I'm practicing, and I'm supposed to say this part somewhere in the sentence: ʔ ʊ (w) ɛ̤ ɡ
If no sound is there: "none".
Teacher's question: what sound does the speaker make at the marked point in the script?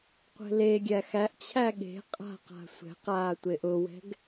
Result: w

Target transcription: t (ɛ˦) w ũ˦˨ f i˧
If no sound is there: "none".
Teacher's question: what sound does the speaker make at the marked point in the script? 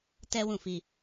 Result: ɛ˦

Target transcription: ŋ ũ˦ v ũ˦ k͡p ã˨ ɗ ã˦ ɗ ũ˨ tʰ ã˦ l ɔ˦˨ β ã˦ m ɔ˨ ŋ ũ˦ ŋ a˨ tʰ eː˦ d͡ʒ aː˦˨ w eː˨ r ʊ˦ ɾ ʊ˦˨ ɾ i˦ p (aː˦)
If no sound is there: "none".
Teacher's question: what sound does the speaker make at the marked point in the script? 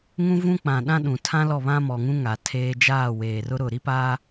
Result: aː˦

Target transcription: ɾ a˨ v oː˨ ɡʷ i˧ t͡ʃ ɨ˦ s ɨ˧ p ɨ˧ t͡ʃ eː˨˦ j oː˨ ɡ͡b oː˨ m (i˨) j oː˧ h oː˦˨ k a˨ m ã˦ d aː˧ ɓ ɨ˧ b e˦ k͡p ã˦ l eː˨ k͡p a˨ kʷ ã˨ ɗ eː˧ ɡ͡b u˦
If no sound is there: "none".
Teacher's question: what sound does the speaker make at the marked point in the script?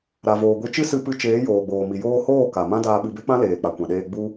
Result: i˨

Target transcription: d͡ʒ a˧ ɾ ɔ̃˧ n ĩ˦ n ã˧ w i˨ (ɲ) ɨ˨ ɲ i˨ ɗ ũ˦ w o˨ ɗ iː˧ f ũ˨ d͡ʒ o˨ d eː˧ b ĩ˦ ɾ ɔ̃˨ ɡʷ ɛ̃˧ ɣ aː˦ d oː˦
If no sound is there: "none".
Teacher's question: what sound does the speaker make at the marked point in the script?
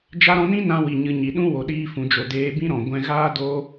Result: ɲ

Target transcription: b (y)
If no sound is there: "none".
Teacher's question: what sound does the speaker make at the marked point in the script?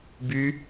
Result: y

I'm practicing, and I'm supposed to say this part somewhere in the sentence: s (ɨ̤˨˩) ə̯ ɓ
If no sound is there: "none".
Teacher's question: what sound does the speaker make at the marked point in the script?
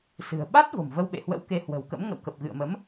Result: ɨ̤˨˩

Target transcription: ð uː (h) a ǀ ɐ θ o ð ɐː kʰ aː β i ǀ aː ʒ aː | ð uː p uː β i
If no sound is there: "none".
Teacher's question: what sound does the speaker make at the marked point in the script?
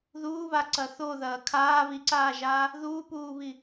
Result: β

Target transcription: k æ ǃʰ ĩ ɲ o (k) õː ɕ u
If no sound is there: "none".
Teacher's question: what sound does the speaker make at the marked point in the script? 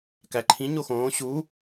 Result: x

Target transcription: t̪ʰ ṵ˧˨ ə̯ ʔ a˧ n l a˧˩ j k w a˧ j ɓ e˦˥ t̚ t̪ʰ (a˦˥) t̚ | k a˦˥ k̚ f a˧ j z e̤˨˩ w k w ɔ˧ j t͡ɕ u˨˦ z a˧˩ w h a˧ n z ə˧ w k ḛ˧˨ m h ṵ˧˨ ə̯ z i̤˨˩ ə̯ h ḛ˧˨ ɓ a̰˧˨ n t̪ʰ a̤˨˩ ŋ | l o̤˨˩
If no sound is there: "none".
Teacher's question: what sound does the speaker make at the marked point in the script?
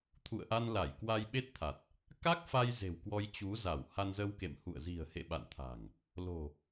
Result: a˨˩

